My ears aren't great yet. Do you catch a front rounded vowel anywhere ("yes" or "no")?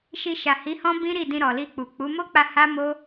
no